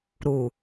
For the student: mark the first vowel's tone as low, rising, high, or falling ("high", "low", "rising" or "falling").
low